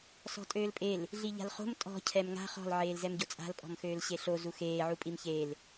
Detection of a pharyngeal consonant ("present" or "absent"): present